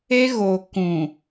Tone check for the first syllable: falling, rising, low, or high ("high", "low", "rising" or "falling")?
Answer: high